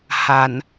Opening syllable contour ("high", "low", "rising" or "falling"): low